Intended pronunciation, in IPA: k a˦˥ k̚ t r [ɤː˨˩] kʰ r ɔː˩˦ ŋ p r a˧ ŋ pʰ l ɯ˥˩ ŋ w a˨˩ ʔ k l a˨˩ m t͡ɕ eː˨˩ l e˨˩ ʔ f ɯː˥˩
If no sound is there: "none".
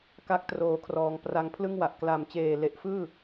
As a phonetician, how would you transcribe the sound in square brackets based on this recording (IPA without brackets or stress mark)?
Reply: oː˨˩